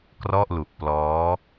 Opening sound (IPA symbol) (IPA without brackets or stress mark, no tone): k